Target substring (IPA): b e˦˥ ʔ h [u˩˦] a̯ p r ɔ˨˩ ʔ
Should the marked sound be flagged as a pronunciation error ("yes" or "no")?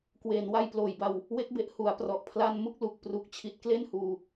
no